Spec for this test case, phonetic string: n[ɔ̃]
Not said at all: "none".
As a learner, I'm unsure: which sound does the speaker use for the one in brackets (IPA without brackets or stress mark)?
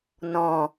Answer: ɔ̃